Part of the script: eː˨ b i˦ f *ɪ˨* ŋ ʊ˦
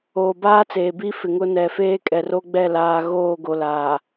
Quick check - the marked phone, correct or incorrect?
correct